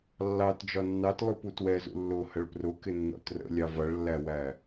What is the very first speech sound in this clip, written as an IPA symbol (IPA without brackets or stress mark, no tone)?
lː